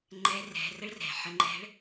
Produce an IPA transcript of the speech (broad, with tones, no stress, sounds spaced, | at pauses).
ŋ͡ǃ ɛ˧˥ r ɛ̤˩˧ r ə˥ ɭ r ɛ̤˩ ħ ə˧ ŋ͡ǃ ɛ̤˧˥ ɭ